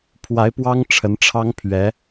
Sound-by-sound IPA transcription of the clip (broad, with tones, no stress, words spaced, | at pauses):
pʰwa˧˥ɪ̯pwɑ˥ŋ ʈ͡ʂʰə˧˥nʈ͡ʂʰɑ˥ŋ pʰɥɛ˧˥